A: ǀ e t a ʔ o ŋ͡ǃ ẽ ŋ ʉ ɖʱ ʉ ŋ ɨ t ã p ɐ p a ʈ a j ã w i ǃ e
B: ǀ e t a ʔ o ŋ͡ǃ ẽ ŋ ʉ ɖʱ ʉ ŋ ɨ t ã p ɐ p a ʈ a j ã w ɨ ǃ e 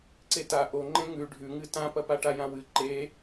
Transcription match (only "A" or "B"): B